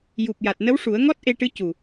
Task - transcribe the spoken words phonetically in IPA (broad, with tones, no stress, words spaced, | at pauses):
ju˨˩p̚ja˨˩t̚ nə˧˥wʂu˨˩˦ə̯ ŋɔ˦˥t̚ʔe˧ʈɨ˧˥ cu˨˩